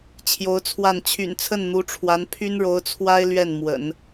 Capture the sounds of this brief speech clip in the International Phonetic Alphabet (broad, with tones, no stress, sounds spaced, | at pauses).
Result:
t͡ɕʰ j o˧˥ ʊ̯ t͡sʰ w a˥˩ n t͡ɕʰ y̰˨˩ n t͡sʰ ə˥˩ n n̪ u˧˥ ʈ͡ʂʰ w a˧˥ n pʰ y˥ n ɻ o˧˥ ʊ̯ t͡sʰ w a˥ ɪ̯ l ɥ ɛ˥˩ n m w ə̰˨˩˦ n